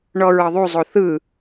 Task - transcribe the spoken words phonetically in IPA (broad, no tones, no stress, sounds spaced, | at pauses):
ɳ ɔ ɹ ɤ ðˤ u zˤ o θ ɯ